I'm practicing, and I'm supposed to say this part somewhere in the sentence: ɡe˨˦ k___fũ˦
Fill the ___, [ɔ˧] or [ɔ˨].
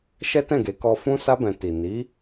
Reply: ɔ˧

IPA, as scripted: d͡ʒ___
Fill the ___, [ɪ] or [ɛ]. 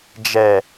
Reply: ɛ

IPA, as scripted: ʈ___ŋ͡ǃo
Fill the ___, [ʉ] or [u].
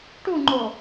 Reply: u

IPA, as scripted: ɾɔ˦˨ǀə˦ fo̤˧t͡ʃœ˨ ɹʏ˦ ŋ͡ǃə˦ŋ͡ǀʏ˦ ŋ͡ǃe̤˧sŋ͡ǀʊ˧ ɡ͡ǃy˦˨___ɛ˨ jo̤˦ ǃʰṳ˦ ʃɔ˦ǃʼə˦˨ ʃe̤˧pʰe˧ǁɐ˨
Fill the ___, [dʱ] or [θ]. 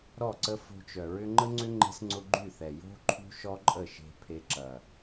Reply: θ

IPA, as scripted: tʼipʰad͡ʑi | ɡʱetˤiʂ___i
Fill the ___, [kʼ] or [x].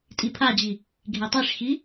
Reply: x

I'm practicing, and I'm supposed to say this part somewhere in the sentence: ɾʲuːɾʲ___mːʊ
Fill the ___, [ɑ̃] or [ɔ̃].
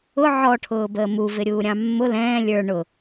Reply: ɑ̃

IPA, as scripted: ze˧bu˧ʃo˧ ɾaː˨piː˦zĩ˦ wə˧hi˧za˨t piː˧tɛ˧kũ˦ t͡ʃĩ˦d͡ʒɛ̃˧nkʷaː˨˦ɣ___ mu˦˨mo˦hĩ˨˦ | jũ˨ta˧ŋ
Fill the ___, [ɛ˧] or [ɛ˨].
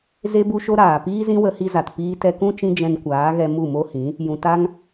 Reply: ɛ˧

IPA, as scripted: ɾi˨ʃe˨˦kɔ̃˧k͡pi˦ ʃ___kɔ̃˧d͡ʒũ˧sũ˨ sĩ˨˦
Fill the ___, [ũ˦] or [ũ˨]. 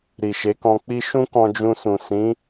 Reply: ũ˦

